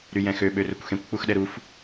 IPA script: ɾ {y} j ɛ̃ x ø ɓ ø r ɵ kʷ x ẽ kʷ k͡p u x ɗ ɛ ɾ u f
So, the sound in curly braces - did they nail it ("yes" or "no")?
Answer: yes